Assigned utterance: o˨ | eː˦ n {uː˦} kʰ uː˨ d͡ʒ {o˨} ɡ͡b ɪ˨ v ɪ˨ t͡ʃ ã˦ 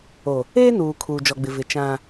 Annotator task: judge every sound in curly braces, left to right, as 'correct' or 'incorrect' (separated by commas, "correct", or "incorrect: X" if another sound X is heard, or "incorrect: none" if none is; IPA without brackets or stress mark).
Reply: incorrect: uː˨, incorrect: ɔ˨